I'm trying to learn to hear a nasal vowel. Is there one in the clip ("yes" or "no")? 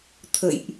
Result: no